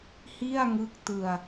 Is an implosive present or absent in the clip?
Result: absent